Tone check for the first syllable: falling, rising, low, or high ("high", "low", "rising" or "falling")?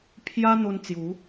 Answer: high